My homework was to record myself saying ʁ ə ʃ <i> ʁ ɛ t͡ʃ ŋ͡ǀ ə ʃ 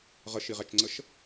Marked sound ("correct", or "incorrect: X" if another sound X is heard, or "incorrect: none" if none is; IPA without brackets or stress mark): correct